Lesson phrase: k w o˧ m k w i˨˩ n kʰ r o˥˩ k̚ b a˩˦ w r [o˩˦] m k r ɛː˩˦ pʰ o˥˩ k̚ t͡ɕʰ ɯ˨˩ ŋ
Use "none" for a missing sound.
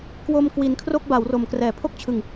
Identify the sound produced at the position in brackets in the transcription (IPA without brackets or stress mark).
o˩˦